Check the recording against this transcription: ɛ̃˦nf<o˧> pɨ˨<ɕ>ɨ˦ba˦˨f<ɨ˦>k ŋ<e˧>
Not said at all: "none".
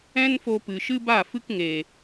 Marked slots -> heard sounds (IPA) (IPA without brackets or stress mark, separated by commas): o˧, ʃ, ɨ˦, e˨